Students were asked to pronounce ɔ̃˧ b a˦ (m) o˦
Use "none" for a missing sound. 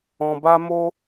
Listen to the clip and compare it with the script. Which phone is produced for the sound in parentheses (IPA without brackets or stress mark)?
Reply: m